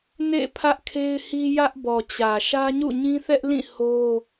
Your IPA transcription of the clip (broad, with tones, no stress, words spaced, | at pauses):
nḛ˦˨ pʰä˦ʔkʰe˦ɪ̯hi˦ jä˦ʔbɔ˨t͡ɕä˨ ʃä˦ɲṵ˦˨ɲĩ˦θɛ˦ʔ lĩ˦˨ ho˦